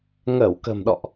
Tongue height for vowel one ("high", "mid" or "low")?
mid